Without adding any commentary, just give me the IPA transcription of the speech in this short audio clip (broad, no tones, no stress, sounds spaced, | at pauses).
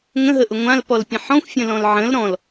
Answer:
ŋ ə̃ ɦ ə ʔ ʊ ŋʷ ã l p ɔ l pʲ ə̃ ħ ɔ̃ xʷ fʲ ə̃ l ɔ̃ l ʕ ə̃ l ɾ ɔ̃ l